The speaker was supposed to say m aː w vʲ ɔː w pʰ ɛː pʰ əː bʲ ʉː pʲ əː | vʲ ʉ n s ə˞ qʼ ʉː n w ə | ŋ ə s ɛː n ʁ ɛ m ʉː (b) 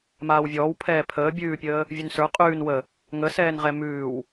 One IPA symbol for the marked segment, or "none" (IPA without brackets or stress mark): w